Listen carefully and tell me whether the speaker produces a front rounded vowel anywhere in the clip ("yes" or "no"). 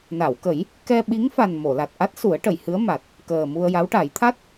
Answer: no